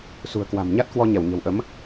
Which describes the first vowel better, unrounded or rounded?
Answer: rounded